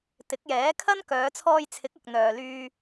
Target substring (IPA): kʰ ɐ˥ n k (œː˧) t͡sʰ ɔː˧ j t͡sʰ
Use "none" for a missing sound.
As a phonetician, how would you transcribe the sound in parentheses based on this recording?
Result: œː˨˧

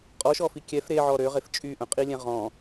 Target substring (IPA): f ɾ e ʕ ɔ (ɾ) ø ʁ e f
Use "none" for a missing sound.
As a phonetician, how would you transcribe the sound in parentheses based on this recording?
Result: ɾ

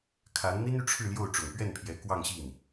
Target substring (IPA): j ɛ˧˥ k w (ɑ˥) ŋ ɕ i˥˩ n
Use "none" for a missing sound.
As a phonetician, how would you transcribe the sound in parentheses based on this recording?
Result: ɑ˥˧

